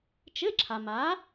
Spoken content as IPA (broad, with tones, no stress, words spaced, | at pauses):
t͡ʃɘ˧˥˧ǁʰa˨ma˨˥